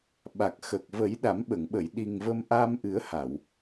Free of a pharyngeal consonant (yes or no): yes